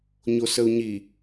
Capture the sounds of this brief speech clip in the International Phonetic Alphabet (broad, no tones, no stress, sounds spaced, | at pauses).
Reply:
ɲ o s ə u̯ ɲ i